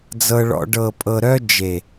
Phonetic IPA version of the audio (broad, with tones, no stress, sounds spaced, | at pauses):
d͡z ɤ˧ ɭ ɔ̰˧ ɖ ɤ˨ pʼ ɤ˨ ɾ œ˧ d͡ʒ e˨